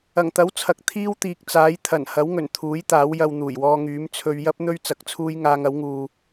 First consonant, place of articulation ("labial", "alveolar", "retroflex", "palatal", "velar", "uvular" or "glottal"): velar